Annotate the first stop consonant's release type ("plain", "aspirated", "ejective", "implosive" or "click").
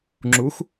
click